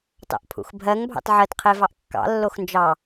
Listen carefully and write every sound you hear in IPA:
t ɑ̰ ʔ pʰ ṵ x bʱ ɜ ŋ bʱ ɑ̰ t ʕ ɜ t qʰ e v ɑ ʔ kː ɑ̰ lː o x n d͡ʒ ɑ

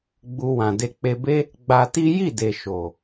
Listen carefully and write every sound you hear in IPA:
ɡ͡b u˦ w ã˧ d e˧ k͡p e˧ b e˦ | ɡ͡b a˧ t i˦ j i˦˨ d e˨ ʃ o˨

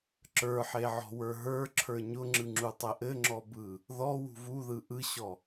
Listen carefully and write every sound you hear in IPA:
ǁ ə˞ ħ e ʕ ɔ̤ w ə˞ ɦ ə˞ ǁʰ ə˞ ɲ ʊ ŋ͡ǁ ɯ ŋ͡ǁ u tˤ ɘ ʔ ɘ ŋ͡ǁ ɔ b ɯ | ð ɔ w ṳ v u ð ɯ ʔ ɯ ɕ ɔ

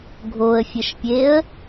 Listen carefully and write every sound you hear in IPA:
ɡʱ o ə̯ fʲ ə ʃ pʲ e ə̯

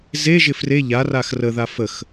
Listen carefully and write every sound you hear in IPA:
z e ʒ ɪ f r e ʎ a r a x r ə ð a f ə x

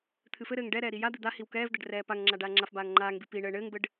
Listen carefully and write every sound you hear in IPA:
t̪ʰ ɨ f ɘ ɾ ɘː ŋ ɖ ɛ ɾ ɛː ɾ i j a d̪ ɨ d̪ a h i w k ɛː v d̪ ɛ ɖ r ɛː p a ŋ ŋ͡ǁ a ɖ aː ŋ͡ǁ a f b aː ŋ ŋ͡ǃ aː ŋ b i p i ɳ ɘː ɳ ɘː ŋ b ɘ ɖ

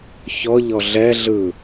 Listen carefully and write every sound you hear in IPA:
ç ɔ ʎ ɔ ɮ ɛ ɮ ɯ

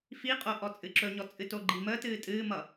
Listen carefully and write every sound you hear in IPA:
f i qʼ o ʔ ɔ t͡sʼ ɨ ǁ ɵ ɲ ɔ t͡sʼ ɨ t o ɡ͡ǃ i m əː t ɨː tʼ ɨː m ʌ

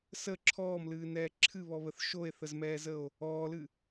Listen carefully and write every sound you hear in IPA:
s ə ǁʰ ɔː m l ɨː n ɛː ǁʰ ɨ β ɔ β ə θ ʃ o e̯ θ ə z m ɛː z ə o̯ | ɔː l ɨ

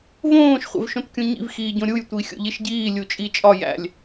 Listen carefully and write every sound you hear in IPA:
v õː ʃ χʷ ḛ v ʃ õ t kʲ ũ ɲ ḭ v x iː ɟ õ ɾʲ u j tʷ i xʲ o̰ ʎ i ʃ ɟ iː lʲ u t͡ʃʼ i t͡ʃʼ ɒ j æ̰ lʲ

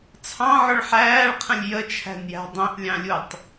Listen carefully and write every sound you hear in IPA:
t͡sʰ ɑ̃ ʕ ʊ ɭ ħ æː ɭ qʰ ə̃ lʲ j ə t͡ʃʰ æ̤ n j æ̤ dˤ ĩ ʔ lʲ ɑ̃ lʲ u tˤ

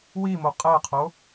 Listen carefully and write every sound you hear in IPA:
w i m o qʼ æ qʰ o

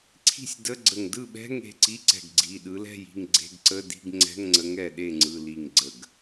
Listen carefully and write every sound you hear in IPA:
ǀʰ i̤˥˩ sʲ d ə˧˥˧ ɡ͡ǀ ə˧˩ ŋ d ɯ˥˩ ɓ ɛ̤˧˥˧ ŋ e̤˩˧˩ ǀ i˧˥˧ ǀ ɛ̤˧˩ ɡ ɡ͡ǀ i˩˧˩ ɗ ɯ˨˦ l ɛ̤˥˩ j i̤˥˩ ŋ ɡ͡ǀ e̤˧˥˧ ɡ ǀ ə˧˥˧ d i̤˧˥˧ ɡ ŋ͡ǀ ɛ̤˧˥˧ ŋ ŋ͡ǀ ə˨˦ ŋ ɛ˧˩ ɗ e˥˩ ŋ͡ǀ ɯ˩˧˩ l i˧˩ ŋ ɡ͡ǀ ə˧˩ ɡ

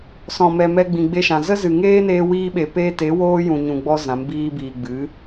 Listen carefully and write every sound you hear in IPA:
s ɔ̃˨ m ɛ˨ m ɛ˧ ɡ͡b ĩ˨ ɡ͡b e˧ ʃ ã˨ z ə˦ z ɨ˨ ŋ eː˦ n eː˦ w iː˦ ɓ e˧ p eː˦ t e˨˦ w oː˦ j ũ˨ ɲ ũ˨ ɡ͡b ɔ˧ z ã˨˦ m b iː˧ b iː˨ ɡ͡b ɨ˨˦

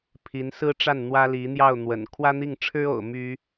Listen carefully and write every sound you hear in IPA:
pʰ i˧˥ n s ɹ̩˥ ʈ͡ʂ a˥˩ n n̪ w ä˥ l i˧˥ n̪ j ɑ˥˩ ʊ̯ n̪ w ə̰˨˩ n kʰ w ä˥ n̪ i˥˩ ŋ ʈ͡ʂʰ ɻ̩˥ o̰˨˩ ʊ̯ m y˥

